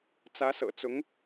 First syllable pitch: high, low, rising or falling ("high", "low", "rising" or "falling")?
rising